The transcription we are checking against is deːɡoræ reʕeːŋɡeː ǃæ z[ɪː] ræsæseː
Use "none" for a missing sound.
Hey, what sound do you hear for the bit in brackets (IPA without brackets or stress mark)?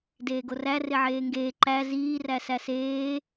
iː